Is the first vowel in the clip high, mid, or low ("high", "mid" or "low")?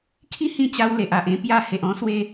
high